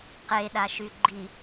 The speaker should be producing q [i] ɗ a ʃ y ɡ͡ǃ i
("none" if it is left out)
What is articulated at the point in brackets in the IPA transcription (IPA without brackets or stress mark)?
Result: e